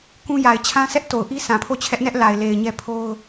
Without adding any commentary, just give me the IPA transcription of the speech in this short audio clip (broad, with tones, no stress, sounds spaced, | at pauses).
k ũ˦ j a˨ ɪ̯ t͡ɕʰ ã˦ sʰ ɛ˦ ʔ t o˨ ʊ̯ ʔ i˦ s ã˨ pʰ o˦˨ t͡ɕʰ ɛ˦ ʔ n ɛ˦ ʔ l a˨ ɪ̯ l e˨ ɪ̯ ɲ ɛ˦ pʰ o˦ ʊ̯